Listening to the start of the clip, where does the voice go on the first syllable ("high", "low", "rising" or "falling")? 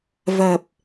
low